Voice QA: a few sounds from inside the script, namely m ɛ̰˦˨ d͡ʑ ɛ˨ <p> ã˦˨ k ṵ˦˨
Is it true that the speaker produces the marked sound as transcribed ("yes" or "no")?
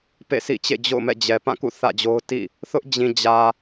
yes